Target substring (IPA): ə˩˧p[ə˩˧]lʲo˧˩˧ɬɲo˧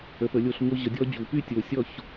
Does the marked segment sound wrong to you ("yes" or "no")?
no